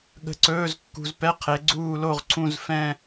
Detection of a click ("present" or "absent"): present